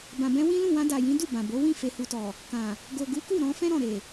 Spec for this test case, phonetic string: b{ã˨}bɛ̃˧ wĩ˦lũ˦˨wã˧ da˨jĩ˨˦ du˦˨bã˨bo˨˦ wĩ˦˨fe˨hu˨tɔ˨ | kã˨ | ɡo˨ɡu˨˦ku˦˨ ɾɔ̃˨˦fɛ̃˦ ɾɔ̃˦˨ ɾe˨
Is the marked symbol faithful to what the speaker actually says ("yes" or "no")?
yes